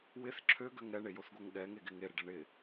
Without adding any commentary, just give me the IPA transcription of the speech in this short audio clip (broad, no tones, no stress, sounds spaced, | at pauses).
w ɪ θ ǁʰ ø ɡ ø ŋ ɾ ɛ ɳ e j o θ ɡ o ŋ ɠ ɛ ŋ e ɡ ɪ ŋ e ɾ ɪ ɖ ɛ ɳ ɪ